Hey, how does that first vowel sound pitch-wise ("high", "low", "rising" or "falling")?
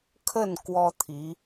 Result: falling